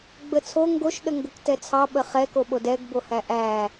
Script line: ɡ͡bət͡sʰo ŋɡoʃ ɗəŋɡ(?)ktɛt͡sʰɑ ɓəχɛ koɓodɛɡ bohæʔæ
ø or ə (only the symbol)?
ə